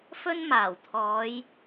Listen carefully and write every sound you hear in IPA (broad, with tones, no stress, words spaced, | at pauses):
fɵ˥nmaː˨˩wt̪ʰɔː˨˧j